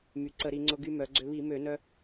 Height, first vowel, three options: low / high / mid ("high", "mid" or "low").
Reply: high